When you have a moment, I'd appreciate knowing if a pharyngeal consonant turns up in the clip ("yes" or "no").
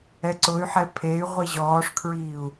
yes